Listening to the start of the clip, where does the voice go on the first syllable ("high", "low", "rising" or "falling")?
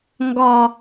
low